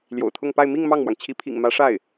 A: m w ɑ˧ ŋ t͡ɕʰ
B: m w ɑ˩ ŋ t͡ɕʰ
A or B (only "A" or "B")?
B